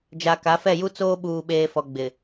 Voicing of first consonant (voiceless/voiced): voiced